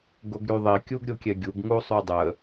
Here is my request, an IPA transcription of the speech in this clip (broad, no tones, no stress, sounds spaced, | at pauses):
ɡ o ɡ ɾ y ðˤ i kʲ u ɡ ɾʲ o kʲ ɛ ɡʲ u ɡ ŋ u sˤ y dˤ ə